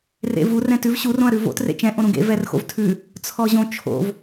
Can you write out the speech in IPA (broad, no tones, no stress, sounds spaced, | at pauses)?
r ḛ v u r ɛ̃ t ʉ v ɕ u r õ ɐ̯ ɾ ʉ v o̰ t r ḛ t͡ʃ ɛ̃ ʔ õ ɾ ũ ɡ ḛ v ɛ r x o̰ v tʰ ʉ | t͡sʰ ɔ ʑ õ t͡ʃʰ o̰ v